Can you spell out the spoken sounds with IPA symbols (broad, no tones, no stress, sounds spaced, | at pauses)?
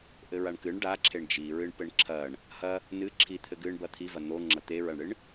ʔ ɘ ɹ a ɳ k ɨ ɳ ɖ a ǁʰ e ɳ d͡ʒ i ɹ ɨ ɳ p ɘ ɳ ǁʰ ɐ ɳ | h ɐ | n ɨ ǁʰ i t̪ʰ ɘ ɡ ɨ ɳ b ɐ t̪ʰ i v ɐ n̪ o ŋ͡ǁ ɐ t̪ e ɹ ɐ ɳ ɽ ɨ ɳ